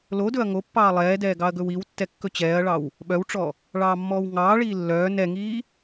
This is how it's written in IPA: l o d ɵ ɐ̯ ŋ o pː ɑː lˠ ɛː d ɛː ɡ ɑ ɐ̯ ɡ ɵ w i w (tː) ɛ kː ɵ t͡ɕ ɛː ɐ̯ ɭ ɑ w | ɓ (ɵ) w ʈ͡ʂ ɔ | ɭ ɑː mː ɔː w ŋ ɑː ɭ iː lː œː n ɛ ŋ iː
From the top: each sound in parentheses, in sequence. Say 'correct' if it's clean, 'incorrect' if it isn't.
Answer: correct, incorrect: œ

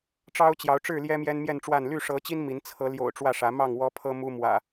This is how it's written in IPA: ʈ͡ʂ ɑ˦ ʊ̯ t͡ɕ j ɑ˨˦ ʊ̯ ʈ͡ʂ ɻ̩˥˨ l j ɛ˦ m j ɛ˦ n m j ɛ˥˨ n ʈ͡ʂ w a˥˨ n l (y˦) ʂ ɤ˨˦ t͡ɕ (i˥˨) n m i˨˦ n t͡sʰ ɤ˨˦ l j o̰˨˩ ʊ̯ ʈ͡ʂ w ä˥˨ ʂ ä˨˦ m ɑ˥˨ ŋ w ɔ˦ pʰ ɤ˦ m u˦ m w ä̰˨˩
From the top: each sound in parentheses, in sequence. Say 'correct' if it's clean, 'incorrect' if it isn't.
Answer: incorrect: y˥˨, incorrect: i˦

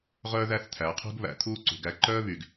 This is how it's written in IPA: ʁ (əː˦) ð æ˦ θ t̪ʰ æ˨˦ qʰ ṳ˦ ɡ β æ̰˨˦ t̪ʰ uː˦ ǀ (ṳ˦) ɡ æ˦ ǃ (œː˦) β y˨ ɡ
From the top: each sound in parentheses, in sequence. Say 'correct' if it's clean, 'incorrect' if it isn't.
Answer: incorrect: œː˦, incorrect: ṳ˨, correct

